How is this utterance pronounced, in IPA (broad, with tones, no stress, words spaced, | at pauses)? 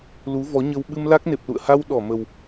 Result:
lu˨˦vɔ˨˦ɲə˧w ɓɨ˧mla˦˥k̚ne˨˩p̚lṵ˧˨ə̯ ha˧w ɗɔ˧˩mə˨˩w